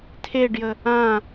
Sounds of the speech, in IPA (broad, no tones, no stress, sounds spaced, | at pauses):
tʰ e ɖ j ə | ã